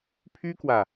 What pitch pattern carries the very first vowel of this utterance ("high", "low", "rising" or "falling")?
high